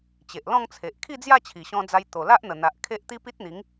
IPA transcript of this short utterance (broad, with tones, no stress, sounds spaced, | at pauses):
t͡ɕ e˨ ʔ l ɔ̃˥˧ ŋ t͡sʰ e˨ ʔ kʰ i˥˧ d͡z j a˥˧ t͡ɕʰ i˨˩ ɕ ɔ̃˧ d͡z a˧ j t̪ o˨˩ l a˦ ʔ n̪ ə˨˩ n̪ a˨ ʔ kʰ e˦ ʔ t̪ i˦ p i˦ t̚ n̪ i˨˦ ŋ